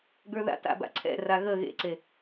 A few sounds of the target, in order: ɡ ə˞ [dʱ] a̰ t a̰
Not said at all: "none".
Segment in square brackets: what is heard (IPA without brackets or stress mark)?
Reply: ð